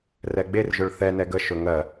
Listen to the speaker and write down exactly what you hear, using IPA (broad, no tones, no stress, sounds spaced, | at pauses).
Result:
r ɛ ɡ͡b e r ʒ ʊ ɭ θ ɛ n ɛ ɡ ə ʃ ɵ ŋ ɜ